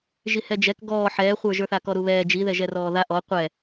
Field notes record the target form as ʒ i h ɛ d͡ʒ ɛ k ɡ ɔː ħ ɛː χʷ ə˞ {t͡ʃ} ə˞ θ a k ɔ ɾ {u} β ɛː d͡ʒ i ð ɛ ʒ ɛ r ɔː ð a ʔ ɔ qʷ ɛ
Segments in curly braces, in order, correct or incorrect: incorrect, correct

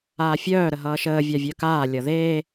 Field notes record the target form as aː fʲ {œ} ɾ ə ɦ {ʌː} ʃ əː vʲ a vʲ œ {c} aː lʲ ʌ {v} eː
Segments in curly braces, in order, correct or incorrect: incorrect, correct, incorrect, incorrect

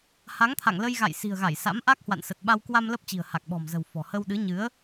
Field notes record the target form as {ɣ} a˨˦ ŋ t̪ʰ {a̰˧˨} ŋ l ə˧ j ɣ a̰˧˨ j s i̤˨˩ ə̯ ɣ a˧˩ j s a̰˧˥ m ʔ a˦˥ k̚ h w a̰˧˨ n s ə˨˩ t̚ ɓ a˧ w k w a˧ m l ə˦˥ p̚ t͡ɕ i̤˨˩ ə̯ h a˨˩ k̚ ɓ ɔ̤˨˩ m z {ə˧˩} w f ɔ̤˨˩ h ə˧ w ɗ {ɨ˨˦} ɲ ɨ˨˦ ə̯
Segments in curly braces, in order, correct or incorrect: incorrect, correct, incorrect, correct

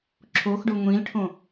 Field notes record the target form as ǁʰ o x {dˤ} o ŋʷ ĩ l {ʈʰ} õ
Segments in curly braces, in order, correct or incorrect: incorrect, correct

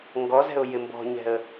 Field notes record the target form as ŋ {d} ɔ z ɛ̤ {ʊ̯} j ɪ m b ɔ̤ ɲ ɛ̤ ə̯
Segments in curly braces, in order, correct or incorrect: incorrect, correct

